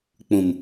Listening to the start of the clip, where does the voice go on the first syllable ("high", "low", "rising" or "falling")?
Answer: low